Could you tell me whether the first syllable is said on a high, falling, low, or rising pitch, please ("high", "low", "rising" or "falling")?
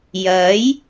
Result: rising